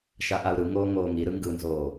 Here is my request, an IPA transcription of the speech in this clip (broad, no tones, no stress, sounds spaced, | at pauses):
ʃ a ʔ a u̯ ɾ ɯ ŋ oː ŋ oː ŋ i ɾ ɯ ŋ ɡ ɯ n z oː